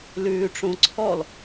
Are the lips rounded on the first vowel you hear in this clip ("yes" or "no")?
yes